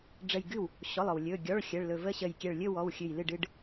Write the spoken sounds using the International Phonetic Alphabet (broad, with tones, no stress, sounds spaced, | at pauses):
ɖ͡ʐ ə˧˩ j ɡ ɨ˥˩ w | ɕ ɔ˩˧˩ lˠ ɔ˩ w lʲ ɵ˩˧˩ ɡʲ ɔ˩˧˩ ɭ xʲ ə˩˧˩ ɭ l ɵ˧˩ v ə˥˧ ɕ ə˧˩ j kʲ ɛ˧˩ ɭ lʲ ɵ˥˧ w ɔ˩˧˩ w xʲ ɨ˧˩ j l ɨ˥˩ ɖ ɨ˥˧ ɖ